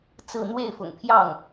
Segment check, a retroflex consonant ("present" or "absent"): absent